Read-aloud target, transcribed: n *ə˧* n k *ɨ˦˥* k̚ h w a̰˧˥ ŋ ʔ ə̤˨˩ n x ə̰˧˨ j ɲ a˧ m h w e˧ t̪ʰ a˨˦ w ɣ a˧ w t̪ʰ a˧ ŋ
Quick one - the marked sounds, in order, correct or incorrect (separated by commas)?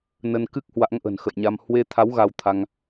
correct, correct